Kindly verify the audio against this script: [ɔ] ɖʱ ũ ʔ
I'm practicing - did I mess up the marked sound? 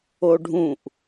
yes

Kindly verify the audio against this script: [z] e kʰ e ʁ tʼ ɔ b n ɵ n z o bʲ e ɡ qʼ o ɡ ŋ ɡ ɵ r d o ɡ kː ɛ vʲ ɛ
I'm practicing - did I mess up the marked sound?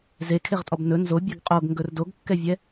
no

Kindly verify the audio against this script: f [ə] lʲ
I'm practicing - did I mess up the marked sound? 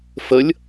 no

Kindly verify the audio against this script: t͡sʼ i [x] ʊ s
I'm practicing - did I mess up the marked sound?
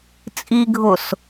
yes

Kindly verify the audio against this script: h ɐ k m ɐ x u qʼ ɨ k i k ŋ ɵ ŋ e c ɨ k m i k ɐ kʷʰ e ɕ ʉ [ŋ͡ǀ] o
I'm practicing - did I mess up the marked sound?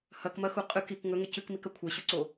yes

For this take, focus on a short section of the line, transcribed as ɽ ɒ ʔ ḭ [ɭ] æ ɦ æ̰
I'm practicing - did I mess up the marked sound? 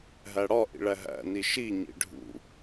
no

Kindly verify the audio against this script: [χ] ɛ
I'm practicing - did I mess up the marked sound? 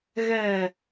yes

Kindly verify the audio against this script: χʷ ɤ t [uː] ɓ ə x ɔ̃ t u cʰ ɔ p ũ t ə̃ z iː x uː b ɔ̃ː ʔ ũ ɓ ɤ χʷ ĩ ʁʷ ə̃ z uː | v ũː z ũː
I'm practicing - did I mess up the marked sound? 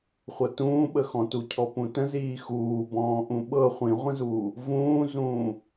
yes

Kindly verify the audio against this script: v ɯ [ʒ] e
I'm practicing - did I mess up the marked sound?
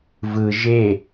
no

